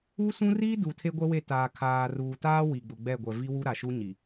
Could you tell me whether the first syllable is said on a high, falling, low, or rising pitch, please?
high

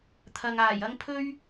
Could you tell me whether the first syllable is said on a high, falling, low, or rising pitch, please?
low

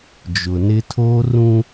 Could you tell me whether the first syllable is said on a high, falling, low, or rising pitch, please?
low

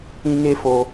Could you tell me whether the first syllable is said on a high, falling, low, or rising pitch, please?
high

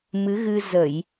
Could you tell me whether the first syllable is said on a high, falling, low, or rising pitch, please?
rising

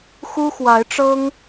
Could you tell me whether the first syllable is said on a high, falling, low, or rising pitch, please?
high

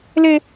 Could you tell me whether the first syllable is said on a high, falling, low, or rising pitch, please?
high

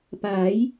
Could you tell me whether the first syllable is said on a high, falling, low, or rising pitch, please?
rising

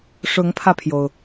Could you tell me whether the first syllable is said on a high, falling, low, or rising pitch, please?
rising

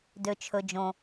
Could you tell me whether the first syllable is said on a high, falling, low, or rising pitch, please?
low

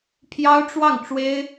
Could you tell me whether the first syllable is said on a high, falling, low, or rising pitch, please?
high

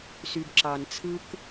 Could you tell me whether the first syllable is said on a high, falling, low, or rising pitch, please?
low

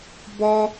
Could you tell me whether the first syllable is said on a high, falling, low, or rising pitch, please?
high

